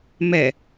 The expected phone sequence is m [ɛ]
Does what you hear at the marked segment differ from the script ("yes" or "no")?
no